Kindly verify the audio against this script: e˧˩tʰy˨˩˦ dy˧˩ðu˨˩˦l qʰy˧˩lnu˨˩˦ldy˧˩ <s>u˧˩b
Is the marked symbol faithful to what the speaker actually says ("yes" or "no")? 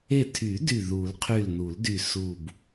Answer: yes